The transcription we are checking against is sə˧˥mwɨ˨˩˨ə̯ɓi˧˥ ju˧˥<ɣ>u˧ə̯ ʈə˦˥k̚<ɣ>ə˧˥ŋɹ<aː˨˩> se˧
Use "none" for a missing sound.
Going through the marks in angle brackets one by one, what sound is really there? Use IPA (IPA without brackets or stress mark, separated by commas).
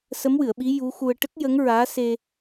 x, j, aː˧˥